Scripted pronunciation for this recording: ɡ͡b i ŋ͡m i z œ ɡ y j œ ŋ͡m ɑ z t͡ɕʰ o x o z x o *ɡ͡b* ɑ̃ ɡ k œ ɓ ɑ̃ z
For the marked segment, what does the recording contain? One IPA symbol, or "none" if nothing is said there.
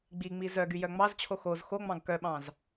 ŋ͡m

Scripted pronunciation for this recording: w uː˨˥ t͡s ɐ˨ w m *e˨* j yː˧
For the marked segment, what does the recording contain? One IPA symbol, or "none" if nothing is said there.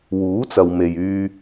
e˨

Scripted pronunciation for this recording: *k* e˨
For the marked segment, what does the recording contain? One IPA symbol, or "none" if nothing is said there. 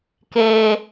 k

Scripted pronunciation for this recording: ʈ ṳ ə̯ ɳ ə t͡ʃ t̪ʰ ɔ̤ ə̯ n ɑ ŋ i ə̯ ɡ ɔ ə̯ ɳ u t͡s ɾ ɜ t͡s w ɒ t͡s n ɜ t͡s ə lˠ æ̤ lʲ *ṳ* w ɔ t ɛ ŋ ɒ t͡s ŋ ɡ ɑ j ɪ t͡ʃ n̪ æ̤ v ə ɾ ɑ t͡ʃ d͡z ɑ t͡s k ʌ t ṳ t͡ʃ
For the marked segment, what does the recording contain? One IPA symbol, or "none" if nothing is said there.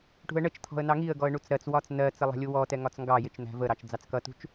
u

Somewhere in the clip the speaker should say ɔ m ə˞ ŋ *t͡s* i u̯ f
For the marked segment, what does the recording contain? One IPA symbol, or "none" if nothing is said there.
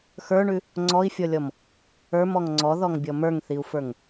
θ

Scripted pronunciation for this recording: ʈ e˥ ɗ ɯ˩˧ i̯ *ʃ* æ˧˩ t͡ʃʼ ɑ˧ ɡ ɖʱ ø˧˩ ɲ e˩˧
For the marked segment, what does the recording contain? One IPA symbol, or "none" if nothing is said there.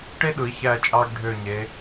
ç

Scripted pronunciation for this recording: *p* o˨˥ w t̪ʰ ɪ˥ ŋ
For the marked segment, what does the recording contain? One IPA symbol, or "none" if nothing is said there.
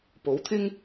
p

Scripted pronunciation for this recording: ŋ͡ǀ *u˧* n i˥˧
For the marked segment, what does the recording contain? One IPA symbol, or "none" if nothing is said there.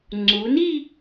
u˩˧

